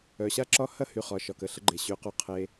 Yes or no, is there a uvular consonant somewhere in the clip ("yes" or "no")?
yes